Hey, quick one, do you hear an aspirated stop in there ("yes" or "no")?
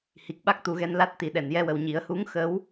no